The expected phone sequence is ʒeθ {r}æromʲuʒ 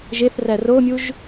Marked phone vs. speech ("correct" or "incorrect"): correct